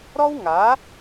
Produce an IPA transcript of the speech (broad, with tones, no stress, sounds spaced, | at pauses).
ɾ ɔ˦ w ŋ a˨˦